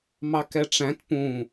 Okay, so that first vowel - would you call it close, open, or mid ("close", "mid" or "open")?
open